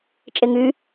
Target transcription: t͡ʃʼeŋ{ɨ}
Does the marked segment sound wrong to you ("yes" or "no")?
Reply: yes